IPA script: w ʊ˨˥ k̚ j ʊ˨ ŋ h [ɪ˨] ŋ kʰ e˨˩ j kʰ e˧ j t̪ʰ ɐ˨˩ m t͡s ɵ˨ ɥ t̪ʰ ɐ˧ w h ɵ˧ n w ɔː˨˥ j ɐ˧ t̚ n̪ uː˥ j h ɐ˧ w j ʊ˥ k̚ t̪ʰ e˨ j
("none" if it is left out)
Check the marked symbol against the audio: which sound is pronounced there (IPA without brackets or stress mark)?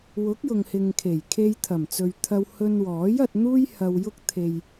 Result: ɪ˨